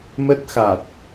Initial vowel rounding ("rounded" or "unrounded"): unrounded